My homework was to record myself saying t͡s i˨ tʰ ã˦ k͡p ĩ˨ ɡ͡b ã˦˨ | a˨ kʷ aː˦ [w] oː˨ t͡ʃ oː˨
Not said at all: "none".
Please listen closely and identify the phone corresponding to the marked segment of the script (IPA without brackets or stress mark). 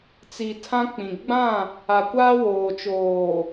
w